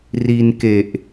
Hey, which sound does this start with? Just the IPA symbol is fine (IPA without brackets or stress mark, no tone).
r